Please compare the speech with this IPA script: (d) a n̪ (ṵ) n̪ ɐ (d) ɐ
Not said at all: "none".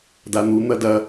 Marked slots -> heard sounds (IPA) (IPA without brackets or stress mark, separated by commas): d, u, d